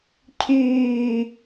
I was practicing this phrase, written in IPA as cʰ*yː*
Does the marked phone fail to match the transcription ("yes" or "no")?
no